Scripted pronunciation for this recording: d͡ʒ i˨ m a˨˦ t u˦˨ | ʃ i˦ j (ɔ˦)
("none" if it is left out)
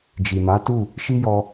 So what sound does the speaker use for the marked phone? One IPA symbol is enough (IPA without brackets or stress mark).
ɔ˧